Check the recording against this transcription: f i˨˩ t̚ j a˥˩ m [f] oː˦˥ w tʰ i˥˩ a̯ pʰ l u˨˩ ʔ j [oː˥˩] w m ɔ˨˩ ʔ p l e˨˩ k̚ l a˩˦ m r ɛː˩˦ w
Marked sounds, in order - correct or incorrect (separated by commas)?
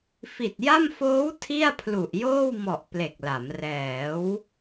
correct, correct